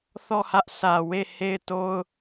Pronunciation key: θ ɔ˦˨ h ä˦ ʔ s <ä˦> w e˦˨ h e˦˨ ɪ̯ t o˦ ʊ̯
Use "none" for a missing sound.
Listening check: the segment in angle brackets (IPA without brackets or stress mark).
ä˨